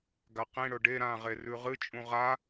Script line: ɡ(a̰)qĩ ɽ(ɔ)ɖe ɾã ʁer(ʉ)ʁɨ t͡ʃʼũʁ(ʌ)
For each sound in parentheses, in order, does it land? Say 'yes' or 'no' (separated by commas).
no, no, yes, no